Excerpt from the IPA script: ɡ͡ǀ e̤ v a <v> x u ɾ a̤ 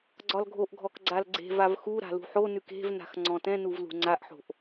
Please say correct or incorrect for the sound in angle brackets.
correct